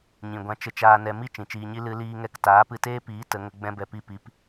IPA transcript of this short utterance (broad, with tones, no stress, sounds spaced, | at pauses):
ɲ ĩ˨ ɡʷ ã˧ t͡ʃ ə˧ t͡ʃ aː˧ n ɛ˧ m i˦ t͡ʃ ĩ˨ t͡ʃ iː˧ ɲ i˦ l ɨ˧ l iː˧ ŋ ɛ˧ k t aː˨˦ p ɨ˧ t eː˦ p iː˨˦ t ə˨˦ ŋ ə˦ ɡ͡b ɛ̃˦ b ɛ˧ p i˦˨ p i˧ p